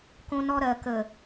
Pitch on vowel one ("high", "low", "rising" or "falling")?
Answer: high